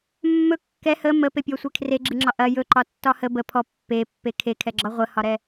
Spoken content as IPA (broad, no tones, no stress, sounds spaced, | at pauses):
mː ɵ kː ɛ h ə m ə p e pʲ ɔ sʷ e kʰ r e ɡ͡ǁ ɨ ŋ͡ǁ ɒ ʔ ɐ j ɵ ǃ ɒ tː ɒ h ə b ə pʰ ɔ pː e pː e kʰ e kʰ ɛ ɡ͡ǁ ɒ ʁʷ ə h ɒ ɾ ɛ